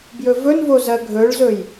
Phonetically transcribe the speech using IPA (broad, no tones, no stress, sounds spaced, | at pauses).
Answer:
b j ɵ v ɵ n v o z ɜ ɡʱ ɵ ɭ z ɵ j